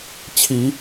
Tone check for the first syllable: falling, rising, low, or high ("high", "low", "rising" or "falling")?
low